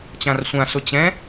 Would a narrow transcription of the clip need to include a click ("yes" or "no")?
no